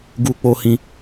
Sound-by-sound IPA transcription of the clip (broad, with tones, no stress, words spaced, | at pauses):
ɡu˦k͡po˦hĩ˦